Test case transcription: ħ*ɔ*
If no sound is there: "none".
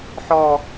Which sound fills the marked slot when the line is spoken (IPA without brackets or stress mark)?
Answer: ɔ